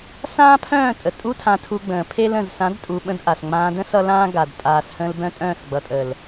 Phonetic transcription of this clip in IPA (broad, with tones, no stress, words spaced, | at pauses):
sãː˦pʰœ̃ː˦˨tʼə˨ tʼu˦tʰã˧tʰu˧ɡ͡bə̃ː˨ pʰe˦l ə̃˨zsã˨˦dtʼu˨ ɓə̃˦dʔa˨s ŋ͡mãː˧də̃˦ sʌ˦lãː˦ ɡa˨d tʼaː˨shə̃ː˧l bœ̃˦tʼœ̃ː˦˨s ɡ͡bʌ˨tʼə˨l